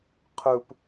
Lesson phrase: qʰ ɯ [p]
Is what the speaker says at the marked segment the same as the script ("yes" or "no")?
yes